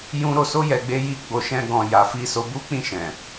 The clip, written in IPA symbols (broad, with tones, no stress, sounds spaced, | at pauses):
j ũ˧ ɾ o˧ s o˦ j ɛ˧ ɡ͡b e˦ j i˦ ɡ͡b o˧ ʃ ɛ̃˦ ɡ ɔ̃˧ j a˨ f i˧ s o˧ b u˦ k͡p ĩ˦˨ ʃ ɛ̃˨